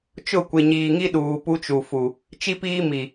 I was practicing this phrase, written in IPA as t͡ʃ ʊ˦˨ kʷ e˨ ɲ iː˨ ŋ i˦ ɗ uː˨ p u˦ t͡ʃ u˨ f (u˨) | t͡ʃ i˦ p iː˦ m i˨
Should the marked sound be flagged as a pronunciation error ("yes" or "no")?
no